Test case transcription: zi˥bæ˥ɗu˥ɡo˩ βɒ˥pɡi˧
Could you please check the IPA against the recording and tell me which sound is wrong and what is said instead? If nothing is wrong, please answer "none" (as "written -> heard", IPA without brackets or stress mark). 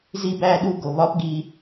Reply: none